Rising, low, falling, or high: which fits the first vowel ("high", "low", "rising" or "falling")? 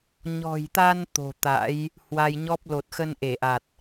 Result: low